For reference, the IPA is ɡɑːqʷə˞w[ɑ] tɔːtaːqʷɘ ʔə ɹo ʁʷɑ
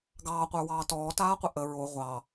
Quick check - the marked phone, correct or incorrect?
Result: incorrect